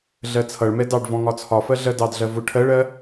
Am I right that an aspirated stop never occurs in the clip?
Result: no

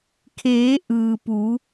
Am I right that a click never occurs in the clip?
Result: yes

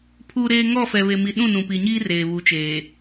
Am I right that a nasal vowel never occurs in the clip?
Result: no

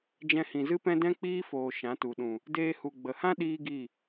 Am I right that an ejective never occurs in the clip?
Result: yes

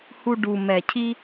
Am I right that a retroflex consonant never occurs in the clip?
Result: no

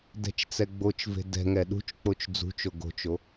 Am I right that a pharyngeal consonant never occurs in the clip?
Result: yes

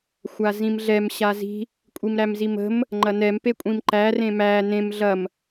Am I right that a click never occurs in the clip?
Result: no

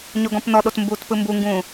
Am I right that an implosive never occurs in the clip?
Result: no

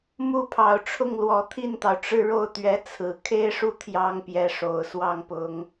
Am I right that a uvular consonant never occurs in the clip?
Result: yes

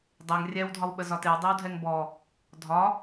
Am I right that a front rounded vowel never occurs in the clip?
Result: yes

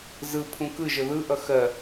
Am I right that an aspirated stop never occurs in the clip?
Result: no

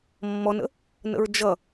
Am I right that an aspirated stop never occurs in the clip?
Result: yes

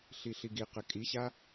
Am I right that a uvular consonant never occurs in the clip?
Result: no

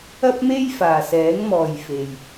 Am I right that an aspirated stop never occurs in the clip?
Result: yes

